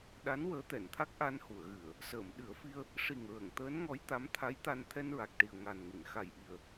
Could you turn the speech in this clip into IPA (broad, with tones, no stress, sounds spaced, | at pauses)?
ɗ a˧˥ n w əː˧˥ t̪ ɛ˨˩˨ n t̪ʰ a˦˥ k̚ ʔ a˧ n h u˨˩˨ ə̯ ɣ ɨ˨˩˨ ə̯ | s əː˨˩˨ m ɗ ɨ˨˩˦ ə̯ f i˧ ə̯ | ʂ i˨˩ ŋ ɹ ə˨˩˨ ŋ t̪ əː˧˥ n ŋ ɔ˧˥ j t̪ a˧˥ m t̪ʰ a˧˥ j t̪ a˧ n t̪ʰ ɛ˧ n ɹ a˨˩ k̚ ʈ i˨˩ ə̯ ŋ a˨˩ n ŋ ɨ˨˩˨ n x a˨˩ j ʔ i˨˩ ə̯